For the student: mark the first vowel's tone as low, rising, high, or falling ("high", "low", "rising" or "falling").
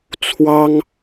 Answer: high